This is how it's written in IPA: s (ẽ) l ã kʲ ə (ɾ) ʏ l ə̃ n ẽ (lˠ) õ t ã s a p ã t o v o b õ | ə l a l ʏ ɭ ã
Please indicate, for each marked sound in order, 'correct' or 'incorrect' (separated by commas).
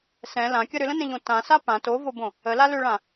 incorrect, correct, incorrect